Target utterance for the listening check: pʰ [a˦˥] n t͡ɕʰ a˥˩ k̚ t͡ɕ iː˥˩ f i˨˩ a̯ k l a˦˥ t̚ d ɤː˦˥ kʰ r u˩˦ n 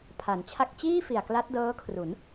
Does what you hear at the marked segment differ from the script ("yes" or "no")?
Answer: yes